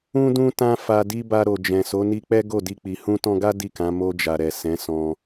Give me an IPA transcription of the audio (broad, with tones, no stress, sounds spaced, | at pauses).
ũ˧ d ũ˧ t ã˧ f a˨ d i˧ b a˧ ɾ o˨ d͡ʒ ɛ̃˨ s o˨˦ n i˧ k͡p ɛ˦ ɡ o˦˨ d i˧ k͡p i˨ h ũ˧ t ɔ̃˧ ɡ a˦ d i˦˨ k ã˨˦ m o˧ d͡ʒ a˨ ɾ ɛ˨ s ɛ̃˨˦ s ɔ̃˧